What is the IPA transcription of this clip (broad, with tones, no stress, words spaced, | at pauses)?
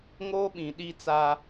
ŋoː˦ɓĩ˨ ɗi˦t͡sa˦